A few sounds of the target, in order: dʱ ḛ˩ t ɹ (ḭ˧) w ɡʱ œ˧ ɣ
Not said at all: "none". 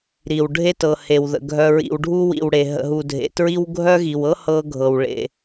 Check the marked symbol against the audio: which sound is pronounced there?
i˧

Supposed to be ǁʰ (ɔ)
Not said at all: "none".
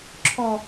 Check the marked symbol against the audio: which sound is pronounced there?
ɔ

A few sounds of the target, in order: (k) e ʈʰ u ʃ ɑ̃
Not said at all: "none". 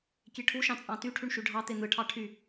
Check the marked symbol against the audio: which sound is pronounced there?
kʲ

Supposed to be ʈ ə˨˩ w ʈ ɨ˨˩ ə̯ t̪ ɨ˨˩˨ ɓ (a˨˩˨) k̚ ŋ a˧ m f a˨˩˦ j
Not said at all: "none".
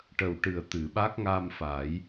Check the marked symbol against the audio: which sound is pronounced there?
a˦˥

